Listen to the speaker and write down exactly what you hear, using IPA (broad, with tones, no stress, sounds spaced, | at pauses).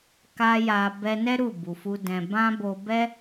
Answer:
k a˧ j a˨ b ɛ˧ n ɛ˦ ɾ u˦˨ b u˨ f u˧ d ɛ̃˨ b ã˧ b o˧ b ɛ˦